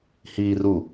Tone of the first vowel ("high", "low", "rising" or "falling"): low